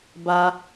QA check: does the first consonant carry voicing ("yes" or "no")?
yes